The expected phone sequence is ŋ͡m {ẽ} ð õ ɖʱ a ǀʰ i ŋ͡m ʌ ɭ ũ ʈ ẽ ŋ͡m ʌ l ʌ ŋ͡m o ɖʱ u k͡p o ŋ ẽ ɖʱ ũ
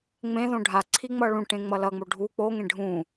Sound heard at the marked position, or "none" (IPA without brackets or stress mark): ẽ